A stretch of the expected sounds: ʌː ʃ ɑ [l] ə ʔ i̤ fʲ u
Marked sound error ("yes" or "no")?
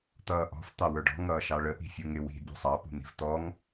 yes